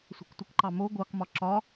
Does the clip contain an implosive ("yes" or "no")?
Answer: no